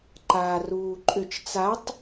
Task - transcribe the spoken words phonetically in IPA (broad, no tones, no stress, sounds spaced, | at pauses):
ǃ aː r uː ǃʼ ʏ t͡ʃ t͡s a tˤ